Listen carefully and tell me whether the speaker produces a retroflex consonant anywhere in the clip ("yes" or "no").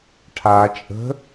yes